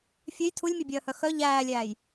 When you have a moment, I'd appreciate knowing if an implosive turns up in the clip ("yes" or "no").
no